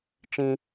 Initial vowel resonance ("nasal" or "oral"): nasal